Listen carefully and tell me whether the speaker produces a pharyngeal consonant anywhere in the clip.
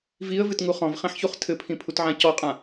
yes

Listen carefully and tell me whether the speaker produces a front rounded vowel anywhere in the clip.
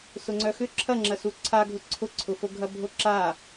yes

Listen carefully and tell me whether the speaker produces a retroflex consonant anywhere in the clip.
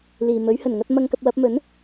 no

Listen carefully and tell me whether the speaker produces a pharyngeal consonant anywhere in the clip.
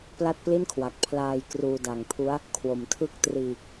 no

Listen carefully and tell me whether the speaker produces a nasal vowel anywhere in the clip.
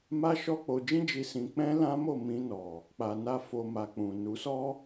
yes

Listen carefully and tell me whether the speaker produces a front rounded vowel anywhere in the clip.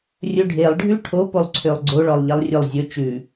yes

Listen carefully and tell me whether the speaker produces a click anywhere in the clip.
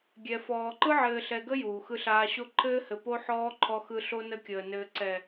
yes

